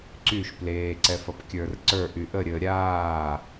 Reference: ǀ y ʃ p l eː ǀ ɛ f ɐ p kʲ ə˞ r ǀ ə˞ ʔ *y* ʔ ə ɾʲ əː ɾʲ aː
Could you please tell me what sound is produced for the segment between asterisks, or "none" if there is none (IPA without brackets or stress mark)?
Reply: y